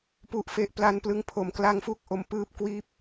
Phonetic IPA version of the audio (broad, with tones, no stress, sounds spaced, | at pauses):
p u˨˩ ʔ f e˦˥ ʔ p l a˧ n p l ɯ˧ ŋ pʰ o˩˦ m k l a˧ ŋ f u˦˥ k̚ ʔ o˧ m p ɯː˥˩ p̚ k w iː˥˩ p̚